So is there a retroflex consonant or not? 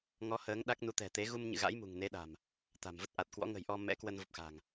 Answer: no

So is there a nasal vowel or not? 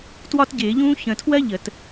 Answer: yes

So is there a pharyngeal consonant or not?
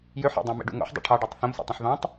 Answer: yes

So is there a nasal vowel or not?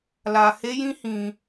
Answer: yes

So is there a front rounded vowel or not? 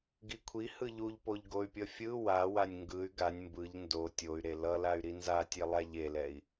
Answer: yes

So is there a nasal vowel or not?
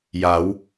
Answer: no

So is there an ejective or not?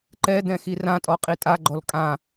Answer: yes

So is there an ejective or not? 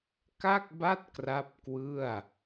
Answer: no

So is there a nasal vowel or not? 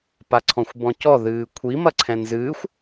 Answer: yes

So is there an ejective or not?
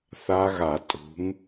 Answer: yes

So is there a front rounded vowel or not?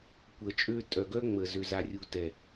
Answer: yes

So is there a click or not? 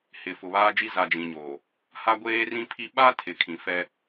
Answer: no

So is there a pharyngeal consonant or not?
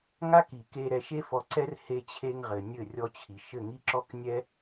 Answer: no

